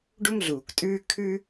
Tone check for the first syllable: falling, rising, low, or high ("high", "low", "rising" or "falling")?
high